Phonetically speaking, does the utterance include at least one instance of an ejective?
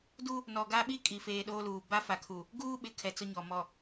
yes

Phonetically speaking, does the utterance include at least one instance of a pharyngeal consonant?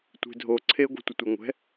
no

